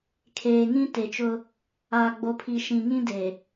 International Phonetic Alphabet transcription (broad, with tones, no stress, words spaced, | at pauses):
kʰeː˨ŋĩ˦ te˨t͡ʃʊ˦ | aː˨ɡ͡bo˨pʰi˨ ʃĩ˨ŋĩ˦de˨